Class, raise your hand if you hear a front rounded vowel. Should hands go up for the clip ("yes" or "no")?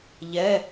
no